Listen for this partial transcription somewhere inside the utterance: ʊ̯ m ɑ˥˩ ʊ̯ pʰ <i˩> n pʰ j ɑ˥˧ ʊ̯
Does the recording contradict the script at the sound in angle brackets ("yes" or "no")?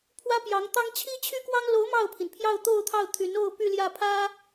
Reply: no